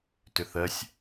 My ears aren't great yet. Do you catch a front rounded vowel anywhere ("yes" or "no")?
yes